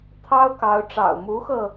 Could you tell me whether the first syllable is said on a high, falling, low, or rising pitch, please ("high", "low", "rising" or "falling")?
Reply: high